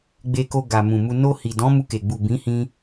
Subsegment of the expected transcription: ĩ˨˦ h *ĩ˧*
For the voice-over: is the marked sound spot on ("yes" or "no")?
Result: yes